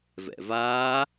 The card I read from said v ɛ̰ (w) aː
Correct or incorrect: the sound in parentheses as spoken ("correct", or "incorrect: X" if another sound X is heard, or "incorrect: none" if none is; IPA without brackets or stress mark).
incorrect: v